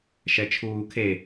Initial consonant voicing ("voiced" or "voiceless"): voiceless